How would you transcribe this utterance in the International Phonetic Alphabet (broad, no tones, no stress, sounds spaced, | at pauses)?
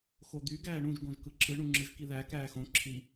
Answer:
x o d̪ y ɡ æː ɳ ũ ʒ ɡ õ ʒ k ɯ ǁ ɯ ɳ ũ ŋ͡ǁ ɯ ʒ k i ð æ k æː x õ ǁʰ i